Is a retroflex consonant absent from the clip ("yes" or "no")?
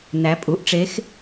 no